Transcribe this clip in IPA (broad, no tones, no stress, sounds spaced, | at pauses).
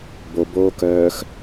b o b oː k œː x